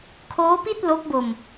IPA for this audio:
kʰ oː˦˥ p i˥˩ t̚ l o˦˥ k̚ b o˧ m

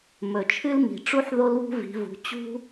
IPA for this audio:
m ɵ˨˩ t͡ʃʰ ɨ˥ l m i̤˨˩ ʈ͡ʂ u˥ ħ ð o˥ l β ṳ˥ v i̤˨˦ v ṳ˨˦ t͡ɕ ṳ˥

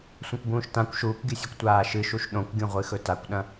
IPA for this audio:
sʷ ɐ̃ kʷ b ũː ʃ t ã kʷ ʃ uː kʷ ɡʲ ɨ sʲ ɨ kʷ tʷ aː ʃ ɨ ʃ u ʃ ɗ õ kʷ ɡʲ ũ ʁʷ ɨ x ɵ t a kʷ ɗ ɐ̃

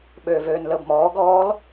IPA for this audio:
ɓ øː v øː n l əː b m ɔː ɡ ɔː l

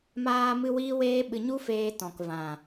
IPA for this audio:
m aː˧ m ɨ˧ w iː˦ w eː˦ ɓ ɨ˧ ɲ u˦ f eː˧ t ɔ̃˨ k v ã˨

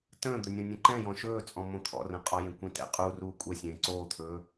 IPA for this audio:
t ə̃ː d̪ ɵ nʲ õ nʲ ə̃ ǃ ɛ̃ j ɔ̃ ʃ ɵː t͡sʼ ɔ̃ m õ t̪ʰ ɔ̰ r ə̃ qʼ ɒ j ẽ kʷ ẽ t ɛ̰ qʼ u r uː kʷʼ ɛ sʲ ẽː ǀ oː t̪ʰ ɵː

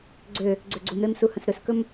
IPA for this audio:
ɡ͡ǀ ø | ɡ͡ǀ ø ɡ͡ǀ u m ɾ e m s u h ə̃ s ɾ ɵ s k ɵ m

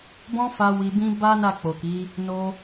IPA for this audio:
b ɔ̃˦ f a˧ w i˧ b ĩ˦ b a˦ n a˦˨ k͡p o˨ k i˨˦ | n o˧

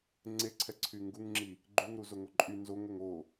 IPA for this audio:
ŋ͡ǀ e ǀʰ ɛ ǀʰ y ŋ ɡ u ŋ ŋ͡ǁ i | ɡ͡ǃ y ŋ ɾ u z o ŋ o ǃʼ y n z o ŋ ə ŋ o

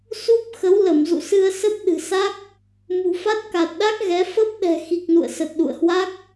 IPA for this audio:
s u˦˥ p̚ x ə˨˦ w l ə˧˩ m z ṵ˧˨ s ɨ˧ ə̯ s ə˦˥ p̚ ɗ ɨ̤˨˩ s a˦˥ k̚ | m ṳ˨˩ f a˦˥ t̚ k a˨˩ t̚ ɗ a˦˥ k̚ ɣ ɛ˨˦ f ə˦˥ p̚ ɗ ɛ̤˨˩ x i˨˩ k̚ n ṵ˧˨ ə̯ s ə˨˩ t̚ ɗ ṵ˧˨ ə̯ h w a˦˥ k̚

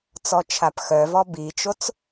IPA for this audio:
t͡s ɔ t͡ʃʰ a p x œ v ɔ b i t͡ʃ o t͡s

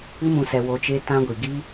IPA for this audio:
ɨ˦ m ũ˧ s ɛ˧ w o˧ t͡ʃ e˦ t ã˦ ɡʷ i˨ ɡ i˦

